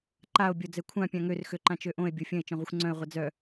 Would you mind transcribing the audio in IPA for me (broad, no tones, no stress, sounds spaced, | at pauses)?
ǃ a o̯ bʲ o d͡z ɛ kʷʰ ã pʲ ã ŋ ø r x ø ǃ ã t͡ʃ ø ʔ õ e̯ bʲ o fʲ ə̃ e̯ t͡ʃ œ̃ ʁʷ ə xʷ ŋ͡ǀ œ̃ e̯ ʁʷ ə d͡z œ